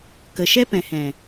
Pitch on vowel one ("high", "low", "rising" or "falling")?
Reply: low